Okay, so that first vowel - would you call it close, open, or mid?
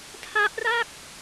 open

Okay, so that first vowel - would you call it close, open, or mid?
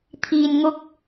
close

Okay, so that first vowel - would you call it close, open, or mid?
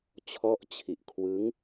mid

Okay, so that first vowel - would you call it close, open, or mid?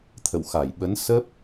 mid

